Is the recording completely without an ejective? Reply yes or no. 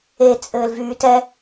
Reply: no